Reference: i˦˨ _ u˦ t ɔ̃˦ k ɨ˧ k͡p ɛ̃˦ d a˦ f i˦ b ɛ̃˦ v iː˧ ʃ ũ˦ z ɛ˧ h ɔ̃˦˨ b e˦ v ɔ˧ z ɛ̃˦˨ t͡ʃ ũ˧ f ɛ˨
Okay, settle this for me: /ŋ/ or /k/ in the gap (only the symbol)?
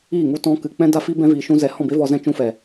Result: ŋ